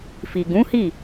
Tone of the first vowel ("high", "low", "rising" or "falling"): low